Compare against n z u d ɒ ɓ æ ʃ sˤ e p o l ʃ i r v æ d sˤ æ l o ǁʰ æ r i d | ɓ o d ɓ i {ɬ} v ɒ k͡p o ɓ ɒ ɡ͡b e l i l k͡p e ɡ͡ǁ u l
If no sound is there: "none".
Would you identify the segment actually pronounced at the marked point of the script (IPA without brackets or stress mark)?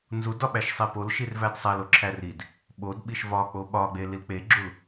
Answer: ʃ